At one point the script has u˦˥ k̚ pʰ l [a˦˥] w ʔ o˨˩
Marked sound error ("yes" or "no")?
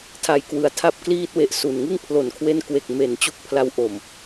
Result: no